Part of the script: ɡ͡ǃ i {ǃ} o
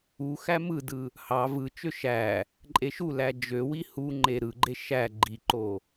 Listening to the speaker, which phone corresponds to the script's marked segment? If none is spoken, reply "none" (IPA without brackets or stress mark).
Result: ǃ